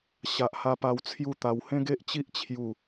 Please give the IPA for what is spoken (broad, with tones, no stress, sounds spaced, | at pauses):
ɕ a˨ ʔ h a˧ p a˧ w t͡sʰ j u˥˧ t̪ a˧ w h ẽ˦ ɡ e˦ ʔ t͡ɕ i˦ ʔ t͡ɕʰ j u˥˧